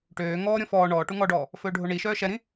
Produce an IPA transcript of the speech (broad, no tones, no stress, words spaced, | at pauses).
ʈøː ŋɔːɾʲɔ̃ fɔː ɳɔː ʈuŋɔɖɔː | fɵːɖʱoɳiʃœː ʃɛɾĩ